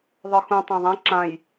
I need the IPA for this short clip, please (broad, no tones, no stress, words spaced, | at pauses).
ðˤə˞xũ tˤãðˤɛ̃ ǁãj